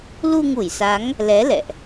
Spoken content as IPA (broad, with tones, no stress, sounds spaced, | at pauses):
l u˧ ŋ u˧˩ j s a˨˦ ŋ | l ɛ˨˦ l ɛ̰˧˨ ʔ